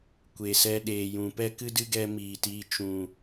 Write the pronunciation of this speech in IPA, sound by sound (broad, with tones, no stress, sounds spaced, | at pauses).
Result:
kʷ e˨ s ɛ˧ ɗ eː˨ j ũ˨ p ɛ˦ k ɨ˦ d ɨ˦ ɡ ɛ˧ m iː˨ t iː˧ t͡ʃ ũ˨